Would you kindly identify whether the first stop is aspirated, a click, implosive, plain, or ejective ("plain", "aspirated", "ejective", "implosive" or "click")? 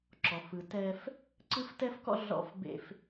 click